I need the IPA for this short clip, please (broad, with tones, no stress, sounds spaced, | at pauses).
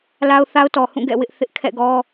l a˦ ʊ̯ θ a˦ ʊ̯ t ɔ˨ h ũ˦˨ ɡ ɛ̰˦˨ w ɪ˦ ʔ θ ɪ˦ ʔ kʰ ɛ̰˦˨ ɡ ɔ˦